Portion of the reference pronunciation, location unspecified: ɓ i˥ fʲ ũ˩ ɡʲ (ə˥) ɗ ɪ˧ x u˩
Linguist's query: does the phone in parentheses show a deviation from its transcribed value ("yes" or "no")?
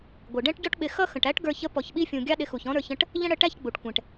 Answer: yes